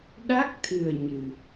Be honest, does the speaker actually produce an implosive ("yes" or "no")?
yes